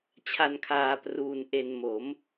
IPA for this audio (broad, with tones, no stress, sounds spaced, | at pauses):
t͡ɕʰ a˧ n kʰ aː˧ p r uː˧ n ʔ e˧ n m o˩˦ m